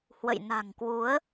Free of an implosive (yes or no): yes